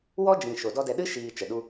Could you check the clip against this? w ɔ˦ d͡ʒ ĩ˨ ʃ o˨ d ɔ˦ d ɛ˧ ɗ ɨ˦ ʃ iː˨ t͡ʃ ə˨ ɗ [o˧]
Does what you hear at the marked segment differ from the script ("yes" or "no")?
yes